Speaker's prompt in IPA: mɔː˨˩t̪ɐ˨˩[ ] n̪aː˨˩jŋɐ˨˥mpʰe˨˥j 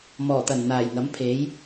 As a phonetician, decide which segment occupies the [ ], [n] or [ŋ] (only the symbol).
n